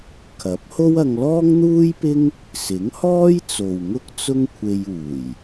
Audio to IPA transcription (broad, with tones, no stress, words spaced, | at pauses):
kʰɐ˨˥p̚ho˥w ɐ˧ŋlɔː˥ŋn̪uː˥jpɪ˥ŋ | sɪ˨˥ŋhɔː˥jt͡so˨w ŋʊ˥k̚ t͡sʊ˥ŋkʷʰe˧j uː˨˩j